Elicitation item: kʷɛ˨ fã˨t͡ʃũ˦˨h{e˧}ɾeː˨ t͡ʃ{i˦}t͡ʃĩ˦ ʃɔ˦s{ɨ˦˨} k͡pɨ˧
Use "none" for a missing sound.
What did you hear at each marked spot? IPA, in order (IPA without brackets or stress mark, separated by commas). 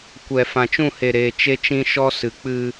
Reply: e˨, e˦, ɨ˨˦